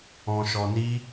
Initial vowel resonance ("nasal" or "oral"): nasal